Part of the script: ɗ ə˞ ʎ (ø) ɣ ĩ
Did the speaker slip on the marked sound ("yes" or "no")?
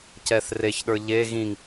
yes